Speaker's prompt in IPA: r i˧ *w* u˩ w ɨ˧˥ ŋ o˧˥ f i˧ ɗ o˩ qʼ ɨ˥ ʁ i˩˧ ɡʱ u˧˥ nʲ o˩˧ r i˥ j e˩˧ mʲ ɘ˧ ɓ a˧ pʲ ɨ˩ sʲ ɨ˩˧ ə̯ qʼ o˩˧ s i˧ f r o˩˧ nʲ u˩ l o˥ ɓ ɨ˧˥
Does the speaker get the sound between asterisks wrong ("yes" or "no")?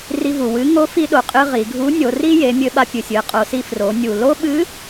yes